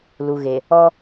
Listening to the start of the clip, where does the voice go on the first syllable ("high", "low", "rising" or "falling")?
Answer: low